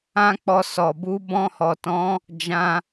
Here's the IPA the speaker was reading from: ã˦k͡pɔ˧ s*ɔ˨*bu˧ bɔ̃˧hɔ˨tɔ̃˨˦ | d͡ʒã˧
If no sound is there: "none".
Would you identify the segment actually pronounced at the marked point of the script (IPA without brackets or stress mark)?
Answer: ɔ˨